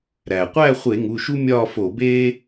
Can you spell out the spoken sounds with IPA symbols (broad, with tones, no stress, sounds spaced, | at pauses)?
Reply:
ɾ æ˩ qʷ æ˥˧ χʷ e˧˩˧ ŋ u˩˧˩ ʃ u˥ mʲ ɒː˥˧ f o˧˩˧ b eː˥